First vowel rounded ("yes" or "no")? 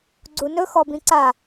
yes